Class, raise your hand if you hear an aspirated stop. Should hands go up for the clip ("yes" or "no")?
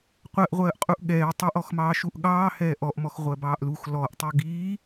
no